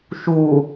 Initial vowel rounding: rounded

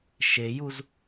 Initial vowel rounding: unrounded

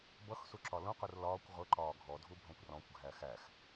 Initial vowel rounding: unrounded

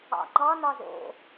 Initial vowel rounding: unrounded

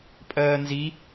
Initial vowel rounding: unrounded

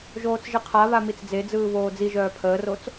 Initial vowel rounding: rounded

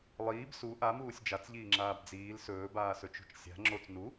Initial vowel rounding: unrounded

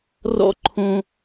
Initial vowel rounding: rounded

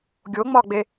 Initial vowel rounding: rounded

